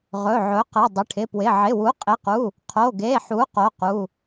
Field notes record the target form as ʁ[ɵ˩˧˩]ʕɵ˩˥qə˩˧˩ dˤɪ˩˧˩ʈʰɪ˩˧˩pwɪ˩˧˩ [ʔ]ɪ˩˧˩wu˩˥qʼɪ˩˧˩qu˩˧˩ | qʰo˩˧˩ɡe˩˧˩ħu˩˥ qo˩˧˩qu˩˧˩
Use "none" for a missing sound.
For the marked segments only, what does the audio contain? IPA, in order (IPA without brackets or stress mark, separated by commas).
ɵ˩˧˩, ʕ